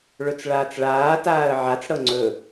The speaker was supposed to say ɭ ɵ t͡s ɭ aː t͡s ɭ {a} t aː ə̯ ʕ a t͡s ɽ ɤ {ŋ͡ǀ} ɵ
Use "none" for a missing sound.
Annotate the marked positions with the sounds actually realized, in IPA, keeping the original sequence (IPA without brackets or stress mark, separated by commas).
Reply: aː, ŋ͡ǀ